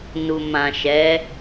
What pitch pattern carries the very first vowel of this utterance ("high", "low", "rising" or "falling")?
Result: low